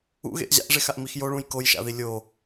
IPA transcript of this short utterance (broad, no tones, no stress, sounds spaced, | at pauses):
ṵ ɣ ḛ ʔ ʑ a̰ ʔ ʐ e x a ʔ m i x j o ɭ ũ j k o j ʃ a̰ ð i lʲ o